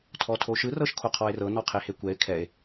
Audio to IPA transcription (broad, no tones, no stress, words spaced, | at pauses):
tʰɔtʰoʃɯ rɤʃkʰoqʰɔe̯rɤ nɔqʰehekʷɛe̯ kʰɛe̯